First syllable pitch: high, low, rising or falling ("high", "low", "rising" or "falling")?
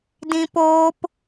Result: high